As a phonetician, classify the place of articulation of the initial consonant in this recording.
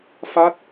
labial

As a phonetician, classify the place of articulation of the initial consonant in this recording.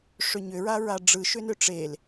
retroflex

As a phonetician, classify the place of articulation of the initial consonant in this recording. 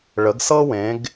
retroflex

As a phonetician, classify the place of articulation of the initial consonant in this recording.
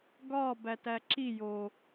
velar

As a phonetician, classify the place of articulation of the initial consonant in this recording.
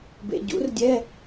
labial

